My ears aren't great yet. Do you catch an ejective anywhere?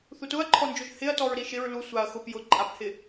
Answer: yes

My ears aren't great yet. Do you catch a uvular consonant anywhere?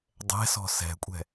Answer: no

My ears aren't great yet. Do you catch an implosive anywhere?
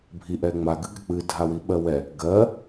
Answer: yes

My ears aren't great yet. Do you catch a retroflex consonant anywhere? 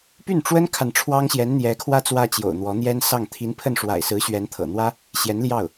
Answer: yes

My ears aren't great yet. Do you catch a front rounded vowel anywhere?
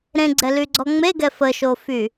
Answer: yes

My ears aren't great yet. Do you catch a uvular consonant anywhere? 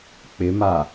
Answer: no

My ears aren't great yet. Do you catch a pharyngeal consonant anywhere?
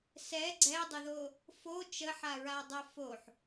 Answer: yes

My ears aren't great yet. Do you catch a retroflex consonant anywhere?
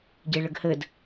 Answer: yes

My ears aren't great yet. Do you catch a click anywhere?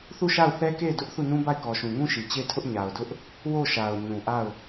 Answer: no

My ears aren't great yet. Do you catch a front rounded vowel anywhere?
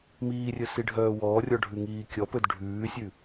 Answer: yes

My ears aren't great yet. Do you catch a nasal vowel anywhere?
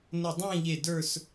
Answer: yes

